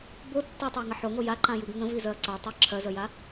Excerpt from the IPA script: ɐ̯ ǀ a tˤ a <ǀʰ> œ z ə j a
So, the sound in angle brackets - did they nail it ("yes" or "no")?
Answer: no